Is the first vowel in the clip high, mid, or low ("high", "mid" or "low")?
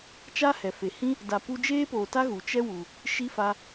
low